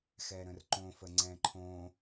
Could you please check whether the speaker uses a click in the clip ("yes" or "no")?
yes